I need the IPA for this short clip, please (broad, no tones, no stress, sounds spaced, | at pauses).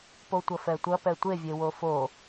p o tʷ ɐ f ɛ tʷ ɐ p ɛ tʷ e vʲ e w o f o